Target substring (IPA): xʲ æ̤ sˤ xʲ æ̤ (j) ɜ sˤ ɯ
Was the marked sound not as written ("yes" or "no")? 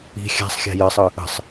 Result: no